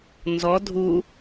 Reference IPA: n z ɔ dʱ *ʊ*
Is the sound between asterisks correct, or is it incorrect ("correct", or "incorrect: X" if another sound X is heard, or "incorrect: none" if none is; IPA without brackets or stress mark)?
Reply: incorrect: u